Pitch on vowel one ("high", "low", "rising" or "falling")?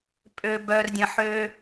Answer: low